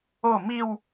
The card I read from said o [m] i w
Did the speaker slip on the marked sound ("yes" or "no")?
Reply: no